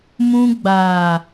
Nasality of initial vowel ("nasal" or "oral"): nasal